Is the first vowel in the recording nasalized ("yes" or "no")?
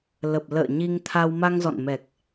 no